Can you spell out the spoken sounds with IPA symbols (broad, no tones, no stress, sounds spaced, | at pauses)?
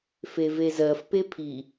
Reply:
f e v e z ɜ f p e pʰ i